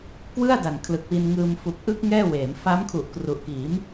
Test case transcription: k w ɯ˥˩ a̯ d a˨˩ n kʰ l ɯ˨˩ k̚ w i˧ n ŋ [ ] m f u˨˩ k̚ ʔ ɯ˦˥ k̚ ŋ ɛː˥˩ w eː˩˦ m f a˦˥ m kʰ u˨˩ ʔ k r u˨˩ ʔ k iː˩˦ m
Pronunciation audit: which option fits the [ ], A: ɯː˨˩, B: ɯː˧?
B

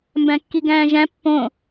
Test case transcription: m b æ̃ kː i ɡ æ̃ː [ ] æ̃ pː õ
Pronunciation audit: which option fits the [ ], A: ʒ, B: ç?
A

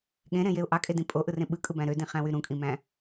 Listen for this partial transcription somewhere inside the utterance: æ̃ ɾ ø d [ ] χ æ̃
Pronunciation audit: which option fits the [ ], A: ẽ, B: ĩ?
B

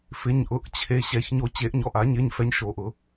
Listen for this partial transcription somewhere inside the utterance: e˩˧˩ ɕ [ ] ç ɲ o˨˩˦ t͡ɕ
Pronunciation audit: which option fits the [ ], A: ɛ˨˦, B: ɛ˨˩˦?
B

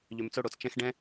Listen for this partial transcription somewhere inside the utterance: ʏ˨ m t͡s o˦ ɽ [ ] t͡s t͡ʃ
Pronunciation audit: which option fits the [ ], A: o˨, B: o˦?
A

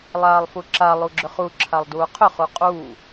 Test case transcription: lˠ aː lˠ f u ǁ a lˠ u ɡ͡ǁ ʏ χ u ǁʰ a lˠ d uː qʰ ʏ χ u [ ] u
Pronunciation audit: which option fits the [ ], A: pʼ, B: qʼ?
B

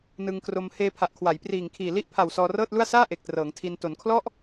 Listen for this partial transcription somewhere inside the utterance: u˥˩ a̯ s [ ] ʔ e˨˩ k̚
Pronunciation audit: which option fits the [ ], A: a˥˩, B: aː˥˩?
B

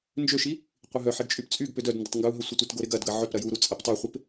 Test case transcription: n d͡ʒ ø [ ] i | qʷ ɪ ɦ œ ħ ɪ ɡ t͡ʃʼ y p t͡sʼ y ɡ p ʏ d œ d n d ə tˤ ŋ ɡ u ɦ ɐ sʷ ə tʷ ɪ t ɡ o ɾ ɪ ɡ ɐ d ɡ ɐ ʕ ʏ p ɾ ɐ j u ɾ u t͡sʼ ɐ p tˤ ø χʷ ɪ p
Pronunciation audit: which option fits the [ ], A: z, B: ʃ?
B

